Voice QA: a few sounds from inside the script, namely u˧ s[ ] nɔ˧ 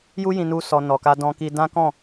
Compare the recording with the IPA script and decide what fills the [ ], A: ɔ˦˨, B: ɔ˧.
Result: B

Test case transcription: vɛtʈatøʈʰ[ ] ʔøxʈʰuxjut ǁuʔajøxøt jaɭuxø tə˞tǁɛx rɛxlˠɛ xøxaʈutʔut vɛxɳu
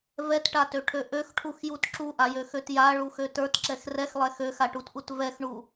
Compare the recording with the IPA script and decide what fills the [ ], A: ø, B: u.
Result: A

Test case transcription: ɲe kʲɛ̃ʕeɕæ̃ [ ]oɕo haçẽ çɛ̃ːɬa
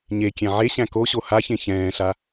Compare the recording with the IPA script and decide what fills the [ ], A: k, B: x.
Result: A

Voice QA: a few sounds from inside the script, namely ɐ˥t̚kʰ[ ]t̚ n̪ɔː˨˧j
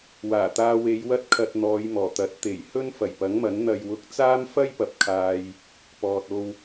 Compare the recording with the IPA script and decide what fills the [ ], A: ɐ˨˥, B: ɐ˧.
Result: B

